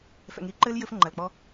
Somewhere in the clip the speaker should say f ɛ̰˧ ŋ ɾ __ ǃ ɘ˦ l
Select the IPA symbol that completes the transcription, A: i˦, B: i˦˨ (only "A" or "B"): A